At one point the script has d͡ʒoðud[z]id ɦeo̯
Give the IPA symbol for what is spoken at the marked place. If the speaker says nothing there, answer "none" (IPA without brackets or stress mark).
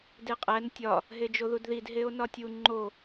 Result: ð